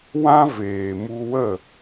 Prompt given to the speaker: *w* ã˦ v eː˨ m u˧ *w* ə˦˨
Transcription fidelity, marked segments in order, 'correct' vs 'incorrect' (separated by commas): correct, correct